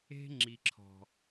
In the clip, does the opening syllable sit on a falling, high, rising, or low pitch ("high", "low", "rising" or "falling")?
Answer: high